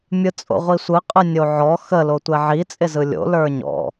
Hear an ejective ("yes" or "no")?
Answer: yes